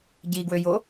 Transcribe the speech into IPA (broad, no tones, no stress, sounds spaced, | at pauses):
ɟ i ɡ w ø j o